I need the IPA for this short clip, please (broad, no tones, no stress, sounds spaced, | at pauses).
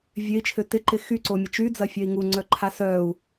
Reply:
vʲ ø i̯ t͡ʃʰ ø t ɪ ǃ ɪ x y ǀ o mʲ ə t͡ʃ y d͡z ɐ fʲ œ i̯ ŋ u ŋ͡ǀ œ ǃʰ a s œ u̯